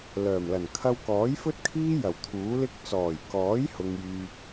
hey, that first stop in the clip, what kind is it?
aspirated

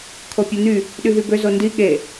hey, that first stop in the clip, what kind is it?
aspirated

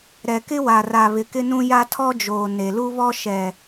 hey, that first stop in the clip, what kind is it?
plain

